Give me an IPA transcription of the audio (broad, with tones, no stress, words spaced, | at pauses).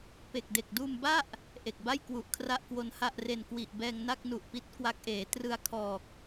pe˨˩k̚de˨˩k̚duː˧mba˥˩ʔ | ʔe˨˩k̚ba˥˩j kwu˨˩ʔ kʰra˥˩ʔkwo˧nha˥˩ʔre˧n kwi˨˩ʔ bɛː˧ŋna˥˩k̚nu˨˩ʔpi˦˥t̚ kwa˦˥k̚ʔeː˩˦ trɯ˧a̯kʰɔː˨˩k̚